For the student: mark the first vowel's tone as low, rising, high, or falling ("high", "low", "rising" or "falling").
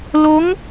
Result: rising